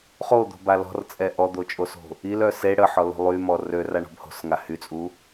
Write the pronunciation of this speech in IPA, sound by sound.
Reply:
χ o d̪ o̤ b a l ɔ̤ r t͡sʼ ɛ ʔ ɔ d̪ o t͡ʃʼ o s o̤ | i l œ s e ɽ ə ħ ɔ l o̤ lˠ y m ɔ r ø r a ɳ ɔ̤ b h o̤ s ŋ a h y t͡sʼ u

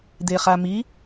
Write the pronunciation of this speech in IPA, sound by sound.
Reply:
d̪ e χ a m i

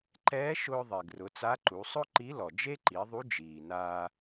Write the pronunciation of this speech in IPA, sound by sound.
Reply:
ǃ ɛː˧˥ ʃ ʊː˧ ðˤ e˩ ɡ r ʊ˩˧ t͡s a˧˥ ǃ u˩˧ sˤ ʊ˥ ǃ i˧˥ l ɔ˩ d͡ʒ e˥ ǃ i˩˧ ðˤ u˧˥ d͡ʒ iː˩ n aː˧

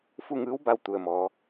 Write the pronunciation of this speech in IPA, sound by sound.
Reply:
f u˥˨ ŋ ɯː˧˥ w b a˧ w t̪ u˩ ə̯ m ɔː˩˧

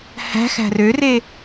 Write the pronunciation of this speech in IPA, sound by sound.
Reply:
h æ̤ x æ̤ r ø r e

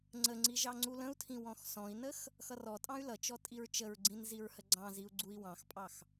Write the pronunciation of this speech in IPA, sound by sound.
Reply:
ŋ͡ǀ ə ŋ͡ǀ i ʒ ɑ ŋ͡ǀ u l ə̃ u̯ tʰ ĩ w ɔ̃ x s ɔ̃ i̯ n ə x | x ʌ r ɔ tʼ ɑ̃ y̯ l ʌ t͡ʃ ɔ tʼ i ɹ t͡ʃ ə ɹ ɡ͡ǀ ĩ n z i ɹ h ə ɡ͡ǀ ɑ̃ z i u̯ ɡ͡ǀ u i̯ w ɑ̃ x pʼ ɑ x

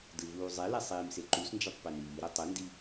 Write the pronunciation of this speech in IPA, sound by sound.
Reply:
d ɯ v uː zˤ e l ɛ sˤ iː m s e ǃ u s n d͡ʒ ʌ tˤ p e n iː ɾ o tˤ ɯ n d i

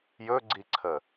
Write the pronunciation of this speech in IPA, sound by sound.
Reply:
j ɵ ɡ͡ǀ i ǀʰ ə

